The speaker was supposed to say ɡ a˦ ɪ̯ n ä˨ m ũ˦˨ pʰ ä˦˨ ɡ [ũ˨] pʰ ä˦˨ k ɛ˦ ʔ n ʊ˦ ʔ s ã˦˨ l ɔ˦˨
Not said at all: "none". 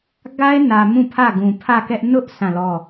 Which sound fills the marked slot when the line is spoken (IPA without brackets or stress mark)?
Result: ũ˨